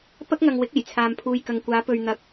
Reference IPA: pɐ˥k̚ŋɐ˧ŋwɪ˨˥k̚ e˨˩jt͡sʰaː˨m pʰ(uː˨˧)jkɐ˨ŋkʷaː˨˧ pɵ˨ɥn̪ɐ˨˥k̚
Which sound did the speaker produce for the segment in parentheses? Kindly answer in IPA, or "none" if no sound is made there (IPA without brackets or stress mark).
uː˨